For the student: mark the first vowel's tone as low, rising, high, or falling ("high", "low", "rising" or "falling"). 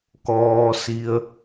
low